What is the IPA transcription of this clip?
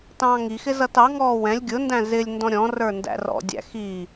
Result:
tɑ̃ːŋixɪ zʌtɑŋɔː wɛ̃lʲ ɡʲʊndæ̃ zɪlʲndɔ̃ ɾʲɔ̃rə˞ ndæ̰rɔ̰dʲæ̰ xi

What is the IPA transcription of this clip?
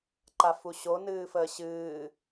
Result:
ǃafuɕo nɨːfəːɕɨː

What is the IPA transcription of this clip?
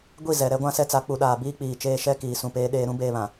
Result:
ɡʷi˦˨ zɛ˨ ɾɛ˦ɡʷã˦sɛ˦t͡sa˨˦ k͡pu˨ɗaː˨ biː˦k͡piː˨t͡ʃeː˦ ʃɛ˦kiː˨sũ˨ peː˦ɗeː˦ ɾũ˦ beː˦βã˨

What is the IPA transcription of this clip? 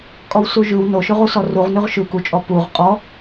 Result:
kʼɔwsuʒʉw noʃʉʁu sɔruʁ nʉʁʃʉ kut͡ʃʼɔ puʁ qʼɔ

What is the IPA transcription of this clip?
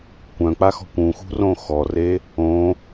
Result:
kʷœ̃k͡pa xɔ̤kʷũxṳ rõxɔre | õ

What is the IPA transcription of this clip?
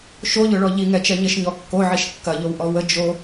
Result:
ʃoʎʊɭɔ ʎiŋɛt͡ʃɛ ɲɪʃɲɔ kːoʕiʃ kːɐʎowʔɔ wə d͡ʒo

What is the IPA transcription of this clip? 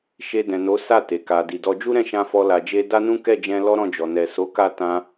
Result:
ʃe˧dɛ̃˨no˨˦ sa˦˨ te˨ka˨di˨dɔ˧ d͡ʒu˦ɾɛ̃˦˨ʃã˧ fɔ˧ la˨d͡ʒe˧ da˦nũ˦ kɛ˦˨d͡ʒɛ̃˧ lɔ˦ɾɔ̃˦˨d͡ʒɔ˨ nɛ˨so˨˦ka˦˨ tã˧

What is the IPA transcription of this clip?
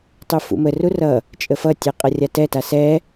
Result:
tˤufṵməru rʌ | t͡ʃʼəfʌtʲɛ qʼʌrʲatɛta sɛ

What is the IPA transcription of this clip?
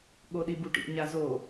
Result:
ɠoɗibuʈḭ ɲazo

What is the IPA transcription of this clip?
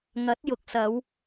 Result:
ŋɐ˨˥t̚ jʊ˨k̚sɐ˨˧w

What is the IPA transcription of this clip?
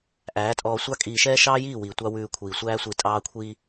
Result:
ʔæː˨˦tʼɔː˧sʷɑ˦ kʼiː˧ʃɛː˦ ʃɑː˦jiː˦˨wiː˨ tʷɑ˦wʉː˧kʷʰiː˨ sʷæː˧sʷi˨tʼɑː˧ kʷʰiː˧

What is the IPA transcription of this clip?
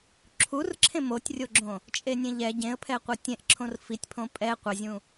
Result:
ǁʰurǁʰẽ motʲrʲoɡ͡ǁõ | t͡ʃʼenʲẽʎɛ ɟẽə̯pʰɛ qʷetʲẽʔǁʰõr fitʲpʰõ pʼɛ qʷɛzʲũ

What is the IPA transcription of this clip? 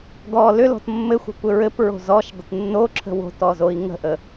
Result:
ɡɔ lʏlɔ̤t mːɘxʷə̤kʷɘ ɹɘpɹo̤ zɔʃdˤət nːoǁʰə̤ wo̤tɔzoi̯ ŋə̤ʔə

